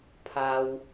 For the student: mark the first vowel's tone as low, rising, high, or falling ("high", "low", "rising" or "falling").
low